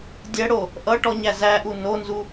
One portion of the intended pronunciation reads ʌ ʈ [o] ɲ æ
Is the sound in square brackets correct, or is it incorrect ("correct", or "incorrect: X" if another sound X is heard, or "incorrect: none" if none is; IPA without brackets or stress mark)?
incorrect: ɔ